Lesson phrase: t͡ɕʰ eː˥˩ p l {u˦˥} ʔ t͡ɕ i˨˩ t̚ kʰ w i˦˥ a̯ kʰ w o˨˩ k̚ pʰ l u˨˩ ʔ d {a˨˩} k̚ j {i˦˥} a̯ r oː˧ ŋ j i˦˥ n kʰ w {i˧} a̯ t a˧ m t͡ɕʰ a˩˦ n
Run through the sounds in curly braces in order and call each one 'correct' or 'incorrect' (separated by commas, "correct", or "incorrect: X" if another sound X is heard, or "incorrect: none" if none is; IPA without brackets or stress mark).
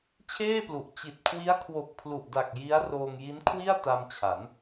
incorrect: u˨˩, correct, correct, incorrect: i˥˩